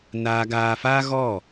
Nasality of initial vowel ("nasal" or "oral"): oral